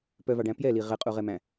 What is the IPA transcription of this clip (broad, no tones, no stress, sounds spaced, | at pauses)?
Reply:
p œ v ɑ ɖ æ̃ p j ɛ l i ʁ ɛ qʼ u ʁ ɛ m æ̃